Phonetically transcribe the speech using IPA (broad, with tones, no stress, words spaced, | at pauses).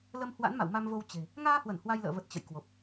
lə˧m hwa̰˧˥nma̰˧˨wma˧mvo˧w t͡ɕe̤˨˩ | ŋaː˧hwə˧˩n hwa˧jlə̰ː˧˨ və˨˩t̚ t͡ɕə̰˧˨j kwo˨˩p̚